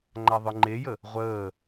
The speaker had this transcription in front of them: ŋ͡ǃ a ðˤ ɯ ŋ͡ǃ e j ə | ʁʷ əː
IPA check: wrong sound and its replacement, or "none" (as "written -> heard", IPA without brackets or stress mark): none